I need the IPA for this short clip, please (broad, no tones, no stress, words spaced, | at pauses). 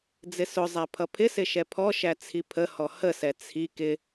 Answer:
d͡zɪsʊzˤæ pʰʌpʰɪsɪ ʃɛpʰɔʃæ t͡sʰipʰəhɔ həsɛ t͡sʰi kɪ